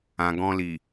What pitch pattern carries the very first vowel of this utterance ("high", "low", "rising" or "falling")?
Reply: low